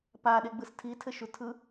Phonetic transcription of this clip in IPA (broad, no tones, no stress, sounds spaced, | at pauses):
p a ɗ e ɡ͡b ɯ s tʰ i tʰ ɘ ʃ u tʰ ɯ